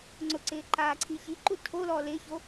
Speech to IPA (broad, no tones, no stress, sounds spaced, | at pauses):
ŋ͡ǀ ʊ ǀ ɪː ǃ aː ǀʰ i ç i ǃ u tʰ o l ɔː l ɪː ç o